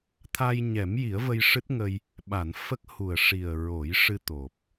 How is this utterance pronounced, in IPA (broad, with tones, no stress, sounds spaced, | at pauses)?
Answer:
t̪ʰ a˧ j ɲ ɛ˨˩˦ m j i˨˩˦ ə̯ v ə˧ j ʂ ɨ˦˥ t̚ ŋ ə˧ j | ɓ a˨˩˨ n f ə˦˥ k̚ h u˨˩ ə̯ ʂ i˨˩ ə̯ ɹ o˨˩˦ j ʂ ɨ˧ t̪ o˨˩ p̚